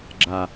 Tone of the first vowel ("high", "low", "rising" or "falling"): low